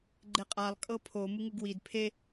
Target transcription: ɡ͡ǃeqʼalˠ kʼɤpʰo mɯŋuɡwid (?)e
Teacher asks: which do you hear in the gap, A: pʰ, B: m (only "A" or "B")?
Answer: A